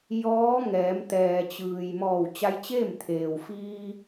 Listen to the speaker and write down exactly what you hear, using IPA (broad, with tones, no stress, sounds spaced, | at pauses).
j ɔː˧˥ ŋ ɛː˩˧ m t̪ ɛː˩ t͡ɕ ɯː˩ j m ɔː˧˩ w t͡ɕ a˧ j t͡ɕ eː˥˨ m t̪ʰ eː˩ w f iː˧